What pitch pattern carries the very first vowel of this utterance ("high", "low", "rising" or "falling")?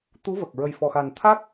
rising